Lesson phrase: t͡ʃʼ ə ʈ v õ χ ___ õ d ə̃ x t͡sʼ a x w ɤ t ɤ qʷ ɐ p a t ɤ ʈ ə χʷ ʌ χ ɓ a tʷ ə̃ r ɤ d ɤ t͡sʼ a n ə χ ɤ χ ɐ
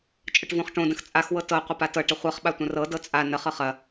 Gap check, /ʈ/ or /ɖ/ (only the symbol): ʈ